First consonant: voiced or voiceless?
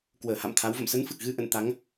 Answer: voiceless